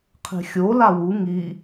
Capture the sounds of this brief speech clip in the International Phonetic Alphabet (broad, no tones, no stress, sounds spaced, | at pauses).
qʰ e̤ xʲ o l a w u ŋ i